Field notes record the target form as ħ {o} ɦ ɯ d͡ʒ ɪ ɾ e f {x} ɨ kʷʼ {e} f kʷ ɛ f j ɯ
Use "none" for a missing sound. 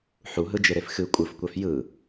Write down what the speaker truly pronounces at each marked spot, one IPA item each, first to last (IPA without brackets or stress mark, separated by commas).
u, x, ɨ